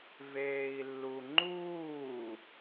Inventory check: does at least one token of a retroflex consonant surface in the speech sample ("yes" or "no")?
no